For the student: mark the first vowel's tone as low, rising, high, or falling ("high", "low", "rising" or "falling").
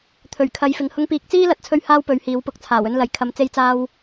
low